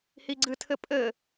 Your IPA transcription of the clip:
h i ɡ͡ǀ ɨ tʰ ɘ pʼ ɘ

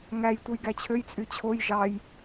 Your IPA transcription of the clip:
ŋ æ j tʷ ɯ j ɡ æ t͡ɕʰ ø j t͡sʼ y t͡ɕʰ o j ʒ ɑ j

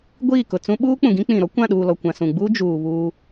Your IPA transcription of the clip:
ɡʷ iː˦˨ k ʊ˨ t͡s ũ˦ ɓ uː˦ k͡p ũ˨ ɡ ĩ˦ k͡p ĩ˨ ɾ ɔ˦ kʷ ã˦˨ ɗ uː˨ l ɔ˨ kʷ ã˨ s ũ˨ ɡ͡b u˦ d͡ʒ uː˨ β uː˦

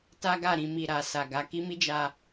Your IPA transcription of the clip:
t a˦ ɡ a˦˨ ɾ ĩ˧ m i˨ ɾ a˨ s a˨ ɡ a˨˦ k i˦ m i˦ d͡ʒ a˧

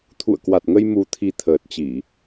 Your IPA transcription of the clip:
t̪ʰ ṵ˧˨ ə̯ k w a˨˩ t̚ ŋ ə˧ j m u˨˩ t̪ʰ i˨˩ t̪ʰ əː˨˩ t̚ t͡ɕ i˧˩˨

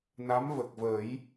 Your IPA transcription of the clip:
n a˧˥ m v ə˨˩ k̚ v ə˨˩˦ j

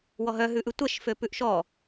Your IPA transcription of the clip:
w ɔ ɦ œ ɦ ʉ ʔ ʉ tʷ ɛ ʃ f ø p ʉ ʔ ʃ ɔ

